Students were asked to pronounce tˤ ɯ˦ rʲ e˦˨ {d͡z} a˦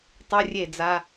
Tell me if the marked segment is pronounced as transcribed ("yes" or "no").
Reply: yes